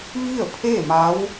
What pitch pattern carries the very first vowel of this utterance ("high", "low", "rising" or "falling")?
falling